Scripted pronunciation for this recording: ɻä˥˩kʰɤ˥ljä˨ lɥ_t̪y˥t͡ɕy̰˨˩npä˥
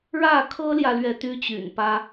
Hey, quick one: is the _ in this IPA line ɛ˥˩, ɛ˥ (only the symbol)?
ɛ˥˩